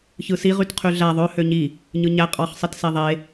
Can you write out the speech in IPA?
çɯsiʁyt qʰyɮæ ðˤø høɲi | ɲɯɲæ qʼɑχsˤitse ðˤe

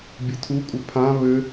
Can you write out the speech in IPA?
bʲɘtʰukʷʼə pʰã βɘ

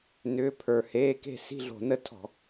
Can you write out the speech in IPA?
nʏː˧˥˧pʰə˞˧˩˧ heː˧˥˧ke̤˥˨ si̤˥˨ɮo̤˧˩˧nə˥˨tʰɔ̤˧˩˧

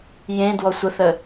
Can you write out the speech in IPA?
jẽ dwɔsʷəθə

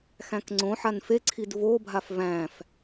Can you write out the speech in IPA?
xæ̃kŋ͡ǀõħan feǀʰid vobʱaf væ̃f

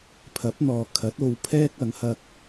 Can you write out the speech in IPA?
pʰɐ˨˥p̚n̪ɔː˨kʰɐ˨˥t̚ o˧wpʰɛː˥k̚ ɐ˨˥ŋhɐ˥k̚

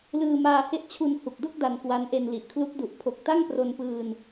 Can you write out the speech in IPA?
lɯː˧maː˧he˦˥ʔ t͡ɕʰu˧n hu˨˩k̚do˥˩k̚ da˧nkwa˦˥nʔe˧n li˨˩ʔkʰlu˦˥k̚ du˨˩ʔpʰo˨˩k̚ ta˥˩ŋpro˧npɯː˧n

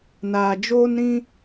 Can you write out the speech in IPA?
naː˨d͡ʒoː˦nɾĩ˦

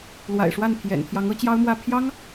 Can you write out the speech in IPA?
lwa̰˨˩ɪ̯ʂwa˥˩n pʰjɛ̰˨˩n t̪ʰjɑ˧˥ŋɤ˧˥t͡ɕjɑ˥ʊ̯mwä˥˩ pʰjɑ˥ŋ

